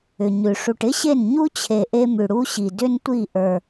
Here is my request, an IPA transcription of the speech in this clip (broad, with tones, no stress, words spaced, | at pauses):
ʏ˨ɲʉ˨ ʂu˨ʈɪ˦ɕe˦˨n ɲu˦t͡ɕʰe˨ ʔe˦mʉ˨ɽu˦ɕi˨ dʏ˦ntʷi˦˨ʔə˞˨